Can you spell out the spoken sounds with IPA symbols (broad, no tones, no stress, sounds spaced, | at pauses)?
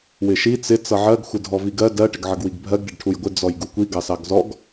w ɪ ʃ i t͡s ɪ t͡s ʌ ʕ ɜ ɡ xʷ ɪ dʱ ɔ v i ɡ ɜ d ɜ ʈ ɪ ɡ ʕ ʌ ɡ w i ɡ bʱ ɜ ɡ ɖ ɪ ɖ ʈʰ u j ɡʷ ɪ d͡z ɔ j ɡ u kʷ i ɡ ɑ s ɑ ɡ z ɔ ɡ